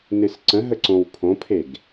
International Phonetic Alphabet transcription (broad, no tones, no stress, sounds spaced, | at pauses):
n ɨ s ǀ ə̃ ɦ ə ǀ õ w pʰ õ pʰ e ɡ